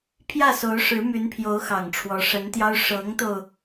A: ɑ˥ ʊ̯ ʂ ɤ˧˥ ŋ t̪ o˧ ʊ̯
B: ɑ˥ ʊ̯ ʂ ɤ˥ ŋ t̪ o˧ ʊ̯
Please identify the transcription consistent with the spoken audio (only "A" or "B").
A